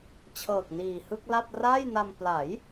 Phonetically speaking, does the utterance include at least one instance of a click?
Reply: no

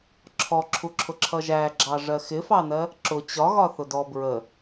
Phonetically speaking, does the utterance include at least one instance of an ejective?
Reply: no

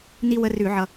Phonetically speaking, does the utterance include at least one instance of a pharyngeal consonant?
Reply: yes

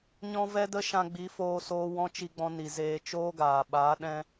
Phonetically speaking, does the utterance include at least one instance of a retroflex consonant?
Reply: no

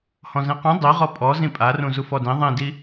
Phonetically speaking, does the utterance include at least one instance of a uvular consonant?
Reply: yes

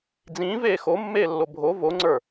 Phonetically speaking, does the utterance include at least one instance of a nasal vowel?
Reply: yes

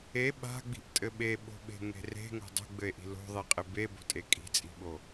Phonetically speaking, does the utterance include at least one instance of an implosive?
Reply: yes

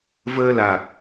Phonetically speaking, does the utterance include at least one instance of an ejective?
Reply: no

